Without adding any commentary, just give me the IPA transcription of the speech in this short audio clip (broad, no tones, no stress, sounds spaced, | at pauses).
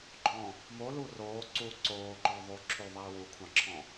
ɡ͡ǃ ɔ̃ | m o l u r oː ǀ u ǀ oː ǃ ɔ ðˤ ʉ ǁʰ ʉ ðˤ iː w u kʷʰ ɑ̃ ǁʰ ɔ̃